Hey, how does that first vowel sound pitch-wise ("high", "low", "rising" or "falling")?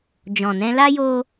low